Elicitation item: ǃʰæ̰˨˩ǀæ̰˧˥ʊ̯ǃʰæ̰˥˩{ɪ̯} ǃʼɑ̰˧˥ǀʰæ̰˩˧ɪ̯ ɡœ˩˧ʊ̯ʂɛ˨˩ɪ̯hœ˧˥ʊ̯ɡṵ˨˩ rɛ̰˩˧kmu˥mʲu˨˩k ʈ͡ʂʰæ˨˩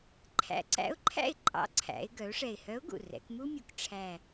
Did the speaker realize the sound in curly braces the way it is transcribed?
yes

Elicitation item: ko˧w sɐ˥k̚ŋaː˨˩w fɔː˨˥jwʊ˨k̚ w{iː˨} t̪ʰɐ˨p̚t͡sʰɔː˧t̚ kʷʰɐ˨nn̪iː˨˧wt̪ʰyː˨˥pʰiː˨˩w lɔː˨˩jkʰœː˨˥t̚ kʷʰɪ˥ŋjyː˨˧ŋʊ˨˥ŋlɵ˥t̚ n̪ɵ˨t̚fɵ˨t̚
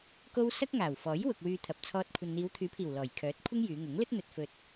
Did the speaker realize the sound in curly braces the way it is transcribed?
no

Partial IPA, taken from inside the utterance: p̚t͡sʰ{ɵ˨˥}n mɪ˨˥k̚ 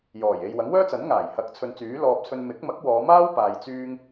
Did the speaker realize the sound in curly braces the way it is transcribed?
no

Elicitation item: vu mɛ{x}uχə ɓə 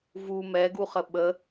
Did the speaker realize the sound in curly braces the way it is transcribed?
no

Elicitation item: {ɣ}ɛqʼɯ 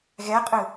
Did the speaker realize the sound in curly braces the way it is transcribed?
yes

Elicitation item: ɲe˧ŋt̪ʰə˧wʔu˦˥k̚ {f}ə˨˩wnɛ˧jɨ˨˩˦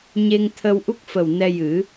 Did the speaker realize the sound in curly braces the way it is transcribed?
yes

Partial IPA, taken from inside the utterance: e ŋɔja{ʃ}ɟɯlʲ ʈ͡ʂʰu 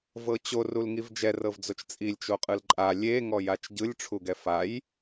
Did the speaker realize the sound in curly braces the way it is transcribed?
no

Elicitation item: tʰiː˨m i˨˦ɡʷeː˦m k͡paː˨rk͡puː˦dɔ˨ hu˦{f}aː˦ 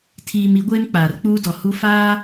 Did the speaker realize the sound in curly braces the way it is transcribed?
yes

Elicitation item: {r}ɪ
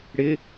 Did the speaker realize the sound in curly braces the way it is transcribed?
no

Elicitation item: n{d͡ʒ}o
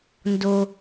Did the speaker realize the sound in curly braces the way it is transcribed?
no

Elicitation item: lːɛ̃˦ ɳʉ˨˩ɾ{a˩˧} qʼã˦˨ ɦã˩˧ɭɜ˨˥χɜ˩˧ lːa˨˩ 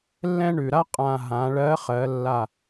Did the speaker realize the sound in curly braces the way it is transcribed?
no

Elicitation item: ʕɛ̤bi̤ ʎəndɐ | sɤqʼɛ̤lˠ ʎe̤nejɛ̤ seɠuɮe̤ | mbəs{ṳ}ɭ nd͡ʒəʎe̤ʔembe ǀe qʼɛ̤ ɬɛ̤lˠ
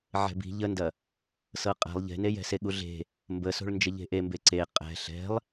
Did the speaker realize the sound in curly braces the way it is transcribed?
no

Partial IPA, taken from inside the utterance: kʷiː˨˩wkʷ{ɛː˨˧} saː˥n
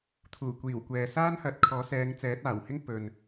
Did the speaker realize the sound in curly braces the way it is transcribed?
no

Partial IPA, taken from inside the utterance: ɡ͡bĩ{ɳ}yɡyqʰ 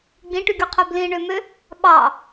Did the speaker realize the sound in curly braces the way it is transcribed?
no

